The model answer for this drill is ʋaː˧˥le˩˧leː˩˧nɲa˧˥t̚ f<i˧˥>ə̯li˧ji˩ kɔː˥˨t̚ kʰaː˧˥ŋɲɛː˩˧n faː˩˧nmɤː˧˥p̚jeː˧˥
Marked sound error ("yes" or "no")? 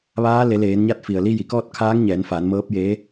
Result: yes